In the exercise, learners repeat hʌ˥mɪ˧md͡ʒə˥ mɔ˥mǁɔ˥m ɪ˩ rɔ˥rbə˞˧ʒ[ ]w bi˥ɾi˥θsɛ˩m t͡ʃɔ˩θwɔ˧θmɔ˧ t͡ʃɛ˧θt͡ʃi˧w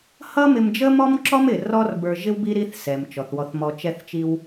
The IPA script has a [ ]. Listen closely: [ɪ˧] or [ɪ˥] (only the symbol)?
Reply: ɪ˥